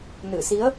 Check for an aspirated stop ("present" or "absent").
absent